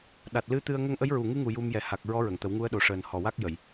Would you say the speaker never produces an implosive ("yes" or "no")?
no